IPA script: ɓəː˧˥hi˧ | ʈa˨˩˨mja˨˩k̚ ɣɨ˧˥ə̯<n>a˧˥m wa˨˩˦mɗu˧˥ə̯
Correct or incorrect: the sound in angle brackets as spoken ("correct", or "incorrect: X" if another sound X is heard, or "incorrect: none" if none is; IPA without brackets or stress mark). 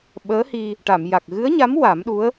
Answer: incorrect: ɲ